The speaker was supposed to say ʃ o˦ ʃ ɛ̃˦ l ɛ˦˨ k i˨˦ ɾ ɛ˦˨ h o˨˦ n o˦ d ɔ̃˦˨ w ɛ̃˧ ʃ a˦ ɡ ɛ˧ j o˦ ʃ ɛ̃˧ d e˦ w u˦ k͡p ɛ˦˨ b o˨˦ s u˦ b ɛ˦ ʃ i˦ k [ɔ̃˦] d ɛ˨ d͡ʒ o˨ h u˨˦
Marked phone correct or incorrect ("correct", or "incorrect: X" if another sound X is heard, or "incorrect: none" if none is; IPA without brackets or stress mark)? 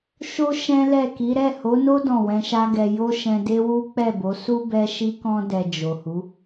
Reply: incorrect: ɔ̃˧